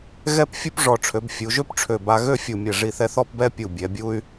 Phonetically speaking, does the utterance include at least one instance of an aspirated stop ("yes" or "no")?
yes